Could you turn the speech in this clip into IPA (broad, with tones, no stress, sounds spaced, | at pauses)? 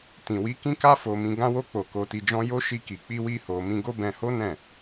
t ĩ˨ w i˨˦ k ĩ˦ k a˦ f o˧ m ĩ˧ ɡ ã˧ w o˧ k͡p o˨ k o˨ t i˨ d͡ʒ ɔ̃˧ j o˦ ʃ i˧ k i˨ k͡p i˧ w i˧ h o˨ m ĩ˧ ɡ o˦ b ɛ̃˧ h o˦ n ɛ̃˦˨